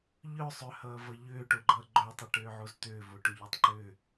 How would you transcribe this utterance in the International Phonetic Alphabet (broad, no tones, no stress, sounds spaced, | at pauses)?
ʎ œ sˤ ʏ h ʌː v ʌ ʎ ʏː ʈ o ɡ͡ǃ ʌː ɡ͡ǃ œ tˤ ə ʈ ʏː ʕ u z t̪ ʏː v o ʈ ʏ ʎ œ tˤ ǃ ʏ